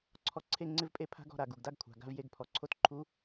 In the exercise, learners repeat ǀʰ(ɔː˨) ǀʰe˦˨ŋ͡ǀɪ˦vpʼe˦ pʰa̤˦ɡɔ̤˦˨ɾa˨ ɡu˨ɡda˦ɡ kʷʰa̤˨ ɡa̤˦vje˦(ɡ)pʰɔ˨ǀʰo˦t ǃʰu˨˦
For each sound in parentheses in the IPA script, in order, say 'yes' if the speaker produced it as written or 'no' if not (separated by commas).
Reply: no, yes